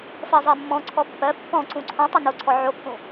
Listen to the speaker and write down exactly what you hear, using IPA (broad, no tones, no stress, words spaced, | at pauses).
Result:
fɜzˤɜmːɔ̃ ǀʰɔpːɜ pːɔ̃ ǀũǀʰɔ̃ tˤonoǀʰɔ ʕokːũ